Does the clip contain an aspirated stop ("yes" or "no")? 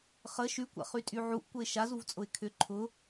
yes